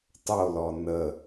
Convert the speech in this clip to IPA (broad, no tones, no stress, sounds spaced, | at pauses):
tˤ o l ɔ n ə